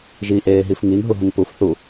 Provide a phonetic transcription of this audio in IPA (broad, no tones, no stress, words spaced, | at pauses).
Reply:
ʒi ʔeːɦifŋiŋ ɦuɦũŋpuf θu